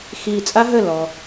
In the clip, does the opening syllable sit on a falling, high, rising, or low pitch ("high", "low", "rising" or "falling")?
low